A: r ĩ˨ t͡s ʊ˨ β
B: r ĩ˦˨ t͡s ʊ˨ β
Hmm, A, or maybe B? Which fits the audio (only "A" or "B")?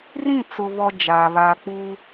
B